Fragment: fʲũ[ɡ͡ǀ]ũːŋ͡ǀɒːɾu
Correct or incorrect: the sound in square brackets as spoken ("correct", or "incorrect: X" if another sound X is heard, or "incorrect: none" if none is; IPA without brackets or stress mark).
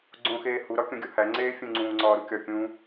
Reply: incorrect: ŋ͡ǀ